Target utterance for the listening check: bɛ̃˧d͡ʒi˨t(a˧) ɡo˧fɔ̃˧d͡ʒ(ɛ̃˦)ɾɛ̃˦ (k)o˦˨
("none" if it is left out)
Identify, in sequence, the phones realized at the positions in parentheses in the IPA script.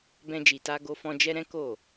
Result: a˧, ɛ˦, k

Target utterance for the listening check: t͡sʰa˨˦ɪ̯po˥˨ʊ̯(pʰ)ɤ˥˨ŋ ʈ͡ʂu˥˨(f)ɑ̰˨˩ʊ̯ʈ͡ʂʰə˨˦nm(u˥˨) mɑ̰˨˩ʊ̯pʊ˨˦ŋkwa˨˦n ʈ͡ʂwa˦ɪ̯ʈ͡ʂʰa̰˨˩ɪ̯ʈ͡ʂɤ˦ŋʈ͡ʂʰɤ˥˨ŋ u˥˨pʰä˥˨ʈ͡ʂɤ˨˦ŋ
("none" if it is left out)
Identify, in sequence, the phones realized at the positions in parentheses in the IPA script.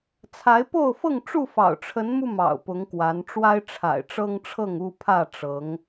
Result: f, f, u˧

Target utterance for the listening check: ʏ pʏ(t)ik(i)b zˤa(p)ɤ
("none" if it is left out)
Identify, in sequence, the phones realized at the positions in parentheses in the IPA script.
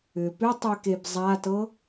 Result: tˤ, e, t

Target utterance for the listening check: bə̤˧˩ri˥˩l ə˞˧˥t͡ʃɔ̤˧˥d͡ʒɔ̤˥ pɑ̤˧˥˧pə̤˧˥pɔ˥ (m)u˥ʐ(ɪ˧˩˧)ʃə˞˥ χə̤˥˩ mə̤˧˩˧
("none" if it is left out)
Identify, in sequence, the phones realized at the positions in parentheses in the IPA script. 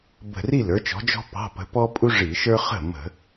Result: pʼ, i˧˩˧

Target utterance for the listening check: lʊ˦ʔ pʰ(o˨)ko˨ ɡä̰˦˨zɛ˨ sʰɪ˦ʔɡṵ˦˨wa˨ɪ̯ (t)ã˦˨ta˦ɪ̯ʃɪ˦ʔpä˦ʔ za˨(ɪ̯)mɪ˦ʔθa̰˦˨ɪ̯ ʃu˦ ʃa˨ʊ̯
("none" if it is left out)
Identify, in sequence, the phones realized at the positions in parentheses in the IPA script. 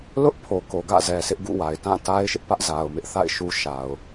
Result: o˨, t, ʊ̯

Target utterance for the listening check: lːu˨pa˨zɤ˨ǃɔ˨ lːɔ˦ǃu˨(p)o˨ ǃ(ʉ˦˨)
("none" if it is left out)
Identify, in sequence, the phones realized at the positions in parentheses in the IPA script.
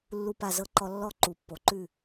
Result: pː, ʉ˦˨

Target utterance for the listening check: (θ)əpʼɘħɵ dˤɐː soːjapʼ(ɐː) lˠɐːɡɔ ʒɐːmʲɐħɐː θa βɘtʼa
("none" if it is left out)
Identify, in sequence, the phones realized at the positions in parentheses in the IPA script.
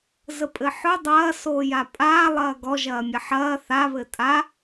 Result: z, aː

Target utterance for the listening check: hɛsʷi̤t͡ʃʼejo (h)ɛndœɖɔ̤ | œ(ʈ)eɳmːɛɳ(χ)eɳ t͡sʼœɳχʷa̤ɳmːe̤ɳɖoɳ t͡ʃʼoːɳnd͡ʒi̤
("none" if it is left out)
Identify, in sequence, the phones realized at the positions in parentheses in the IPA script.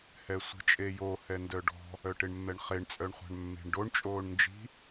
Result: h, ʈ, χ

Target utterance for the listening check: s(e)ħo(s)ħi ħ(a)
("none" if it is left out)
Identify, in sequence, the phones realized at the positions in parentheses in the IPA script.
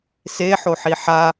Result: e, none, a

